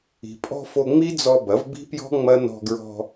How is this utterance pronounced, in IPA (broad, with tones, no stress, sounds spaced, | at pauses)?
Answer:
i̤˨ pʼ ɔ̤˧ f o˧ ŋ͡m i˦ d͡z ɔ˧ b ɐ˨˦ v b i̤˦ p j ɔ̤˦ ŋ͡m ɐ˦ n ɔ̤˧ ɡ ɹ ɔ̤˧